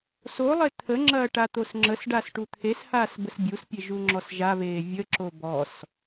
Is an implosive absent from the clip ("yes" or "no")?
yes